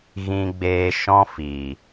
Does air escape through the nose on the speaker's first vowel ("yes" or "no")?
yes